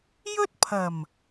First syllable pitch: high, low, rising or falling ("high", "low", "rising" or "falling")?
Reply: high